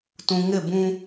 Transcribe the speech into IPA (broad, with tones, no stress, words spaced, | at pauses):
tũ˨ ŋɪ˦˨bũ˦